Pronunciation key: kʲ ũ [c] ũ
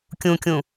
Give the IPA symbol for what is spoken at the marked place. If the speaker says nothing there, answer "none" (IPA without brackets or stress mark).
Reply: kʲ